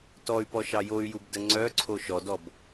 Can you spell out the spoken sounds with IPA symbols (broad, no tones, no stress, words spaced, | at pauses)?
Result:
tɔy̯pɔʃɑ joy̯jubdə ŋ͡ǀœǀʰo ʃɔdɔb